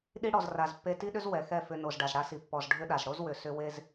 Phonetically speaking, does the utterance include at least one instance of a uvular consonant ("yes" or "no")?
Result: no